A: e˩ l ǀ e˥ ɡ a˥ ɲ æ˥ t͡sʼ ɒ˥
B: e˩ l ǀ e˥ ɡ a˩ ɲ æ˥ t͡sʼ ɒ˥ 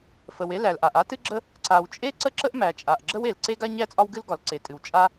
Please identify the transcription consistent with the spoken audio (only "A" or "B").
A